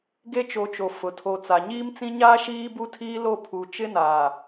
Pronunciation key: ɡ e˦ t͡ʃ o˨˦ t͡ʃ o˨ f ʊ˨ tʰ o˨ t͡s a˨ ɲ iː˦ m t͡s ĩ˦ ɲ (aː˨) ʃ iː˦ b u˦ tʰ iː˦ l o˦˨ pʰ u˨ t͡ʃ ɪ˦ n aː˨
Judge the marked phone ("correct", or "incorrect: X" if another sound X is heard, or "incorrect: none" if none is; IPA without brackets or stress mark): incorrect: aː˦